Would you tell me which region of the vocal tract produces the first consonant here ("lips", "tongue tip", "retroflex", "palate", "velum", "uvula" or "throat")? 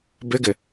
lips